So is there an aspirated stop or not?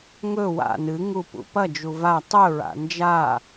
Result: no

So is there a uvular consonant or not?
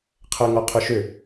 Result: yes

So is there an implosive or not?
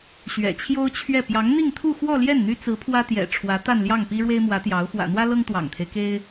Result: no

